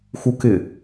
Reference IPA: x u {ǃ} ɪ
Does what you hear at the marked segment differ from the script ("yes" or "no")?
yes